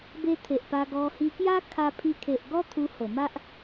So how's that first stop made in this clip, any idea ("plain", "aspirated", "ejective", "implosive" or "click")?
plain